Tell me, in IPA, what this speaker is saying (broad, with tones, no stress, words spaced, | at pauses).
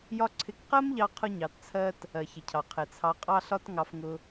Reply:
jɒ˥ǀʰɪ˦k qɜ˥m ʎɑ˦ qʰʊ˦ɲɑ˨tt͡sʰɜ˦t | ɜ˩çɪ˩cʰɑ˩ qʰɪ˩t͡sʰɑ˨ qʼɑ˦ɬɒ˦t ŋɑ˨fŋʊ˨